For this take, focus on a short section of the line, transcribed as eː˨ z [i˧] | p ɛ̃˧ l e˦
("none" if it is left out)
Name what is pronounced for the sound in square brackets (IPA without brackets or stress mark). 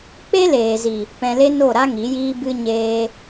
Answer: i˨